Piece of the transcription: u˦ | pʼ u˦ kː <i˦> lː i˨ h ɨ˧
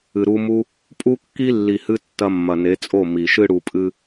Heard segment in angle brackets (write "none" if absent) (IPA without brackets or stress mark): i˦